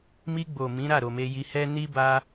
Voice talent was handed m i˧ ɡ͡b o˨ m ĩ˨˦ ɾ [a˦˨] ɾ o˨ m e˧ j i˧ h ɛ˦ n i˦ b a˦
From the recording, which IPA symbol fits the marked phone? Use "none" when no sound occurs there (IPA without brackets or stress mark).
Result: a˦˨